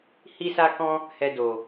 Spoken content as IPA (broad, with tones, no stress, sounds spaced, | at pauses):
h i˦ s a˦ k ɔ̃˦ | h ɛ˦ d o˧